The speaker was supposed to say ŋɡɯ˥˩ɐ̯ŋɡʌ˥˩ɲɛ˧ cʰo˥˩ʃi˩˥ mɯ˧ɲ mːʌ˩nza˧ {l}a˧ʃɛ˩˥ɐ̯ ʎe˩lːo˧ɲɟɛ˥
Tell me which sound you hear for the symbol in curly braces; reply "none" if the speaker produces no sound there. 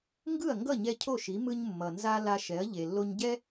l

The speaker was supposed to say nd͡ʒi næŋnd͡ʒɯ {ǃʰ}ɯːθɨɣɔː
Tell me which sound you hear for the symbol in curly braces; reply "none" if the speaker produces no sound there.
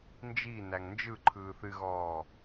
ǃʰ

